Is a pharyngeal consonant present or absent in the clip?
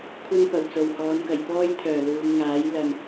absent